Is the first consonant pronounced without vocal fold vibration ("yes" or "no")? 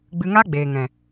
no